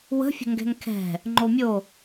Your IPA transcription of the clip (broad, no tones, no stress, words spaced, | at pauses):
wə̤ fʲə̤ŋɡɛ̤ŋkʰɛ̤ | ŋ͡ǃomʲo